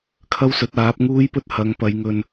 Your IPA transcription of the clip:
kʰ ɐ˥ w s ɵ˨˥ t̚ aː˨˥ p̚ ŋ uː˥ j p ɵ˥ t̚ h ɐ˨˧ ŋ p ɐ˨˧ j ŋ ɵ˧ n

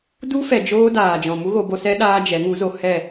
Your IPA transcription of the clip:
d u˦ f ɛ˨ d͡ʒ oː˦ d aː˨ d͡ʒ ɔ̃˨ m u˦ ɣ o˧ b o˧ s ɛ˦ ɗ aː˦ d͡ʒ ɛ˨˦ ŋ u˨˦ z o˧ h ɛ˦˨

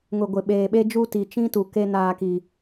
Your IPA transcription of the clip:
ŋ ʊ˨ ɡʷ ɪ˨ ɓ eː˨ ɓ e˦ d͡ʒ u˦ t i˨ t͡ʃ ĩ˦ t u˨ k e˦ n aː˦ k i˦

